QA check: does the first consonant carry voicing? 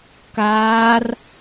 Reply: no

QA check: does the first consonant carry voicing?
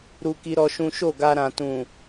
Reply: yes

